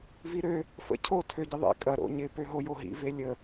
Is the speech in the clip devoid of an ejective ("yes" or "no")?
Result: no